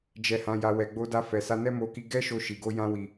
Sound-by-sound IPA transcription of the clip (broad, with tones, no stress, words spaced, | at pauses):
d͡ʒɛ˨hã˨ja˨ wɛ˨ɡ͡bo˧da˧fɛ˨ sa˧nɛ˦mo˧ki˧ ɡɛ˦ʃo˧ ʃi˨ɡo˧ jã˧wi˨